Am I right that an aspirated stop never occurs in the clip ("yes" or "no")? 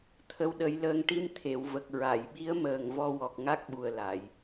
no